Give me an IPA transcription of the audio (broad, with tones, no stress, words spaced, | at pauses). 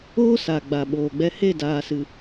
oː˦ sa˨ɡ͡ba˨ ɓoː˨ɡ͡bɛ˧ he˦˨daː˨sɨ˨